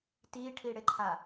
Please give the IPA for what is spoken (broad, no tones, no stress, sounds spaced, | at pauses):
t i ʈʰ i ɽ ɪ ǃʰ a